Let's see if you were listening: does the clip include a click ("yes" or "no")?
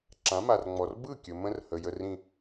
yes